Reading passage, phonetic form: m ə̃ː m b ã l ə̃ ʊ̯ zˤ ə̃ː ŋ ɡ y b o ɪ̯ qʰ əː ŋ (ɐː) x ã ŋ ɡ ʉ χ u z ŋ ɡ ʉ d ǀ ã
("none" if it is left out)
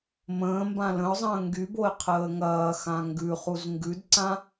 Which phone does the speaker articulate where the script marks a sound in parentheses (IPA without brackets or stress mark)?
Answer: ɐː